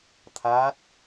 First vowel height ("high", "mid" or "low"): low